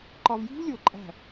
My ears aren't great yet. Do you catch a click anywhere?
yes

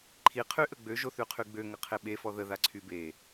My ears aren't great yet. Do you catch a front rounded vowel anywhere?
yes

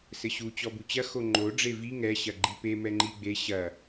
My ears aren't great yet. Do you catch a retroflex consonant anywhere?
yes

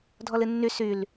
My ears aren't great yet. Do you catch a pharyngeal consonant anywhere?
no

